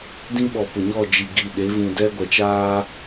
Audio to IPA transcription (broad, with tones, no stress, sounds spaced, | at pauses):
d ĩ˦ ɓ ɔ˨ p ʊ˨ ɲ ɔ˦˨ d͡ʒ i˨ ɡ i˨ ɗ e˨˦ v ũ˨ d ɛ˦ ɡʷ ɛ˨ t͡ʃ aː˦